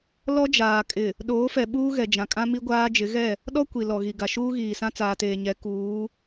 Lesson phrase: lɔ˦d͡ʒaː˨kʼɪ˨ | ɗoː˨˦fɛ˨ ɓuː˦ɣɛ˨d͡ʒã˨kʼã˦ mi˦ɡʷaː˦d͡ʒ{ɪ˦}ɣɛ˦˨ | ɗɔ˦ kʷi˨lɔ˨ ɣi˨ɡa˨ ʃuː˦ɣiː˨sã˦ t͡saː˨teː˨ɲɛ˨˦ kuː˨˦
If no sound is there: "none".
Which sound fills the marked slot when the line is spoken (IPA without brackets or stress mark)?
ɪ˨˦